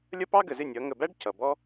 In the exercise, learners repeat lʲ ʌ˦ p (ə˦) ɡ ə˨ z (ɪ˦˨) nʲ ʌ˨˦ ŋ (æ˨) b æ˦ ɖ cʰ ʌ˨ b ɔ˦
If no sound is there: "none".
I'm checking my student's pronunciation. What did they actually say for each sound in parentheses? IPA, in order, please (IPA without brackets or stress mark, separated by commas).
ɑ˦, ɪ˦˨, ə˨